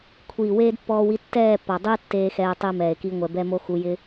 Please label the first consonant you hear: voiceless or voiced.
voiceless